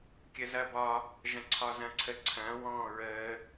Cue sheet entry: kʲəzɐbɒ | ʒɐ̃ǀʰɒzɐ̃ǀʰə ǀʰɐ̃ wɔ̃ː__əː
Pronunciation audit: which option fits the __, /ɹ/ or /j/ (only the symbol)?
ɹ